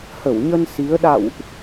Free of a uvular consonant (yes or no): yes